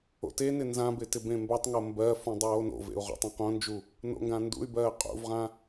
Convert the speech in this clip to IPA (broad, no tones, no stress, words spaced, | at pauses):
o̰tenɪ nzãbɪ tɪbẽmbɜtˤŋo mbɜfũ dˤoːno̰vḛu̯ ʁo̰tˤãqõnd͡ʒu | no̰ŋɡãndṵy̯bɜː qʼṵvʁã